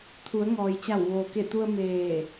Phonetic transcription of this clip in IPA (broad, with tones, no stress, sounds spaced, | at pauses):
t̪ʰ u˩˧ ə̯ ŋ ɔː˩ j t͡ɕ a˧˩ w ʋ oː˩ k e˧˩ t̪ u˧ ə̯ m eː˧˩